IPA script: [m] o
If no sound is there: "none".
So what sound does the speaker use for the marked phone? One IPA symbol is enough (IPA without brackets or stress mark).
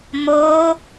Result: m